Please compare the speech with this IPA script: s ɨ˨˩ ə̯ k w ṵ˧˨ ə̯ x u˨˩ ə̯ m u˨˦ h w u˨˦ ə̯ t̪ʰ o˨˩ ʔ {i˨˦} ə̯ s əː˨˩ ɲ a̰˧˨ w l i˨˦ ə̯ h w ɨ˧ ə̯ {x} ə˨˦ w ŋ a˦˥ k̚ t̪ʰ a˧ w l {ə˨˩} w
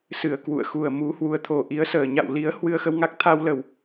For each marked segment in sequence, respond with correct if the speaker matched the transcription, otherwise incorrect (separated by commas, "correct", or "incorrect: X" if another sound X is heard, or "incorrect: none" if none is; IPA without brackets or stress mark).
correct, correct, correct